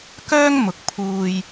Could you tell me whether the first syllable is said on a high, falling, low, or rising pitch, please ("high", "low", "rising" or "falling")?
high